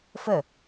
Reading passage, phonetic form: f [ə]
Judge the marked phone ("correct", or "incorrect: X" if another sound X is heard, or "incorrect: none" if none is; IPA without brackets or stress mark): correct